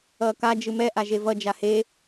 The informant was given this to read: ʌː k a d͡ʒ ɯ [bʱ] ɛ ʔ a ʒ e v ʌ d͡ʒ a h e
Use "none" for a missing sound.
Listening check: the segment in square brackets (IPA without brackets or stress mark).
m